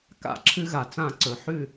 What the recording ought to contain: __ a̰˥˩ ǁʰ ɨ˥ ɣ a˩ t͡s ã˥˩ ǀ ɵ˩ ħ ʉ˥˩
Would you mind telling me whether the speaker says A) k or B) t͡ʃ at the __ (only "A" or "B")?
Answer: A